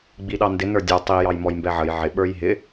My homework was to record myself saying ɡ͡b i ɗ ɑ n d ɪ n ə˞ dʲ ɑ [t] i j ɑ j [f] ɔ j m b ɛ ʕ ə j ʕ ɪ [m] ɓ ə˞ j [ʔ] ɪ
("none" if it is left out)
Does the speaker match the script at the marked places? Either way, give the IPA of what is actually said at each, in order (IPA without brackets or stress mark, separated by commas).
tˤ, m, none, ɦ